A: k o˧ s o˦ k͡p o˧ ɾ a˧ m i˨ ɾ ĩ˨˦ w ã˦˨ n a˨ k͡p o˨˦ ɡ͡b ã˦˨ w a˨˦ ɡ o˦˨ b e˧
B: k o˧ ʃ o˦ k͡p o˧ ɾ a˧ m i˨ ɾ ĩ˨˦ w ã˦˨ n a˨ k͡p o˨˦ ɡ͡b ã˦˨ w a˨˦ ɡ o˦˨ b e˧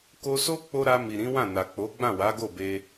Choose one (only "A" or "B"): A